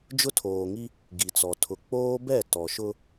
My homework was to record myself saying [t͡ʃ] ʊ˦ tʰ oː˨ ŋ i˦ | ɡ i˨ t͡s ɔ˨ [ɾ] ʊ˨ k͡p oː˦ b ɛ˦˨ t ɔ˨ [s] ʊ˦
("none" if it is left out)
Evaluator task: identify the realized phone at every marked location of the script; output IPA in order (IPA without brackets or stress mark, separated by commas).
d͡ʒ, tʰ, ʃ